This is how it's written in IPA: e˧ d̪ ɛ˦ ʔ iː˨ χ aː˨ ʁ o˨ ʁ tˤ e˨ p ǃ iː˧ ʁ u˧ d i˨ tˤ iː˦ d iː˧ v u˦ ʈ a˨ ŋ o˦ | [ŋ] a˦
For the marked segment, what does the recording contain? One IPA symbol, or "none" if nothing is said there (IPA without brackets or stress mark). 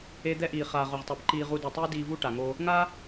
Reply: ŋ